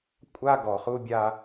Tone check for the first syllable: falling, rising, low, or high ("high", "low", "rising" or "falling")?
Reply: high